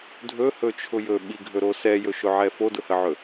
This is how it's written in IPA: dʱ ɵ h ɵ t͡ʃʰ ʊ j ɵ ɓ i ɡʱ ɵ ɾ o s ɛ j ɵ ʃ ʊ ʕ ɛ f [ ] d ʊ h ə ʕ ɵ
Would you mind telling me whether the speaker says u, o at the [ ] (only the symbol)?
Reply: o